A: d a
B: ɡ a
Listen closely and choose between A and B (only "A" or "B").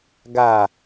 B